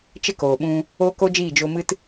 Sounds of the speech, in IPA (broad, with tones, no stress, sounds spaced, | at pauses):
t͡ʃ ə˦ k oː˨ ɓ ũ˧ | oː˦ k o˦ d͡ʒ iː˦˨ d͡ʒ o˧ m ɨ˦ t